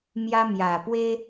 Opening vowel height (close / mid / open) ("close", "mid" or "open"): open